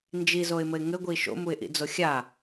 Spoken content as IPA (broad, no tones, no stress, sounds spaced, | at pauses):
n d͡ʒ i z o ɪ̯ m ɘ ɪ̯ ŋ ɘ ɡʷ i ʃ o̰ m u ɪ̯ ʔ ḭ d͡z o xʲ a